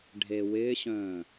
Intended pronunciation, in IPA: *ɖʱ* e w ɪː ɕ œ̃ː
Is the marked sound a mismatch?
no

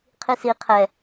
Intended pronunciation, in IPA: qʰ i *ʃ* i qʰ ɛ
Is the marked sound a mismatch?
yes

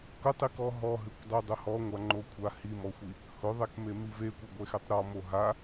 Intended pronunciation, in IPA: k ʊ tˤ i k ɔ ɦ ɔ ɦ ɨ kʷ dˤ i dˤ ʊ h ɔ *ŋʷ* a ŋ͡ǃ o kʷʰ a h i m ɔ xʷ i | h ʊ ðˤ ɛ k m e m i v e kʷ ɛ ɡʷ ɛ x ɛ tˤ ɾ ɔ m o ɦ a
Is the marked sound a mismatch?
no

